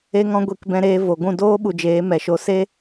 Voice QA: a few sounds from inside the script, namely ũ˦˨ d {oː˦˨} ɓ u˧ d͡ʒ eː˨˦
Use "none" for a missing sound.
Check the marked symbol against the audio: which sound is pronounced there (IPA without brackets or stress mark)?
oː˦